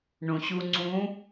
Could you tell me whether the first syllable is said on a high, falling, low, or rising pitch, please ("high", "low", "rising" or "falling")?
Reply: low